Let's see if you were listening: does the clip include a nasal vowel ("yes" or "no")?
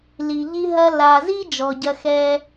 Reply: no